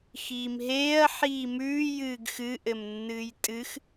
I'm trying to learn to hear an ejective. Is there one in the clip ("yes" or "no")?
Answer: yes